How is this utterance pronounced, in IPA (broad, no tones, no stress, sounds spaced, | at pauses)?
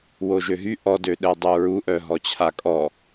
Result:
w o ʒ ø ɦ y ʔ ɔ d ø ɗ ɛ dˤ u ɹ u ʔ œ ɦ ɔ t͡ɕʰ a kʼ ɔ